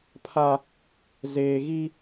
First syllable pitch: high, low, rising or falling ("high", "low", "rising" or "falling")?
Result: high